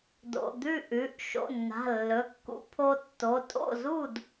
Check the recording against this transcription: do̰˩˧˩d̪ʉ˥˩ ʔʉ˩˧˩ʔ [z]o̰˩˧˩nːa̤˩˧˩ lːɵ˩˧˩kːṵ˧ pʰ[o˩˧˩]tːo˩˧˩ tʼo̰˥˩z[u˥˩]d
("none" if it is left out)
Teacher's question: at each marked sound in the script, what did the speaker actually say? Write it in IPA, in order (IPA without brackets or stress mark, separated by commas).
ʃ, o˧, u˥˩